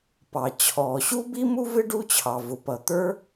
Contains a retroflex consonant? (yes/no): yes